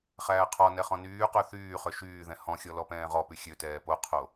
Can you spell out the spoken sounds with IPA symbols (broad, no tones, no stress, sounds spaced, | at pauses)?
χ æː qʰ ɔ n ɛ χ ɔ̃ n yː q ø θ yː χ ø ʃ yː ð ɛ̃ h ɔ̃ xʲ ɔ l ɔ p ɛ̃ː ʁ ɔ p y xʲ ø t ɛː p o qʰ o